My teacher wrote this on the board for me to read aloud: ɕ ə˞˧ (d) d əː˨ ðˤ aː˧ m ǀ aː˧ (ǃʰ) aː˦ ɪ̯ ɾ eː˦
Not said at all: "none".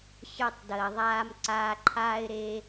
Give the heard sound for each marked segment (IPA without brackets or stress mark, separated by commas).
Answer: tˤ, ǃʰ